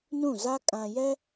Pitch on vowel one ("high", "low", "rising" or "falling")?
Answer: falling